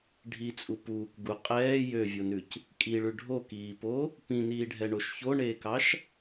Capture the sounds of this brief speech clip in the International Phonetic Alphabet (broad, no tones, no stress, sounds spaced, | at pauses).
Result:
ɖʱ i t͡sʼ u p uː k ɡ u qʼ ɛː j ø vʲ o n ʉ c | kʼ i ɭ ʉ ɖʱ o k iː p o | p ĩ n iː ɖʱ ɛ ɳ o ʃ ç o ɳ eː k ɑ ʃ